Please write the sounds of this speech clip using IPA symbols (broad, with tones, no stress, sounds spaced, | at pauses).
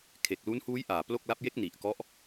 kʰ e˨˩ k̚ l u˦˥ n h uː˦˥ j ʔ aː˨˩ p l o˥˩ k̚ l a˦˥ p̚ j e˦˥ k̚ n i˨˩ ʔ k ɔ˦˥ ʔ